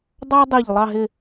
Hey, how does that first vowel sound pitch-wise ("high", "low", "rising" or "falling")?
high